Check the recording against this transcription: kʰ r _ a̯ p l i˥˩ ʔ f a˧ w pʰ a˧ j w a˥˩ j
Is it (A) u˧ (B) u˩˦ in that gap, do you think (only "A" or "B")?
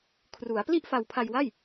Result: B